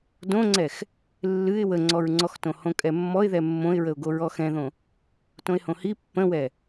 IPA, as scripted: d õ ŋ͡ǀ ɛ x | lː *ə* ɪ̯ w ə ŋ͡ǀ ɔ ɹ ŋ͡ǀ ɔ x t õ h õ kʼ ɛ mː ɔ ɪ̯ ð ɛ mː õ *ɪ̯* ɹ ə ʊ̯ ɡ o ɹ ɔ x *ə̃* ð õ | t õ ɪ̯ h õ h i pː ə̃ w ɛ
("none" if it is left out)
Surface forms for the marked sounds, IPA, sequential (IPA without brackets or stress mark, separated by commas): ɨ, ɪ̯, ɛ̃